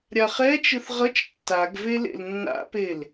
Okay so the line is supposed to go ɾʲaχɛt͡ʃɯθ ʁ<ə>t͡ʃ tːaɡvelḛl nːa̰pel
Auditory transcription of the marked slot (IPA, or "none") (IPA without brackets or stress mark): ʌ